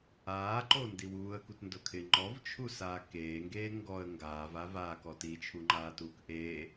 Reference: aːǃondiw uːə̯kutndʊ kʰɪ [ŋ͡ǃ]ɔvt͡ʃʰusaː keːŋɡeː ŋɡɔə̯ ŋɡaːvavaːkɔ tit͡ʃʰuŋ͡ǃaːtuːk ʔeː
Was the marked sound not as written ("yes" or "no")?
no